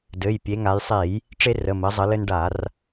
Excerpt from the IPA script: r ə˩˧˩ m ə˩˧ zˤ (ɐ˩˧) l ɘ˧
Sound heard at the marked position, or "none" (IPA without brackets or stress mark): ə˩˧